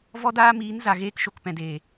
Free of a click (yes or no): yes